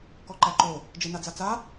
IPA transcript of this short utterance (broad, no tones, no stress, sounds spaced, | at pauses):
k ɔ ǃ æ ǃ o | d͡ʒ e n a d͡z a t͡s a